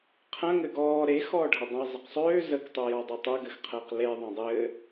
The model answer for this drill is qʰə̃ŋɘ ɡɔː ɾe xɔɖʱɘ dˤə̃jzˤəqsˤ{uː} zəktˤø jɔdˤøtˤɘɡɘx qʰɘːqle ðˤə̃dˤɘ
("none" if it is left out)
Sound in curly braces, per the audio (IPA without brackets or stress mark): øː